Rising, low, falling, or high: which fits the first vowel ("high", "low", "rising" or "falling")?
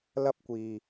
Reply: high